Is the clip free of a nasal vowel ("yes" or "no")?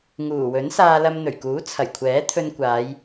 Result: yes